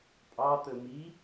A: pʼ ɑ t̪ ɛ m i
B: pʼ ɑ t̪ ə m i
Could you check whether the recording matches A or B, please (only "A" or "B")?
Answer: B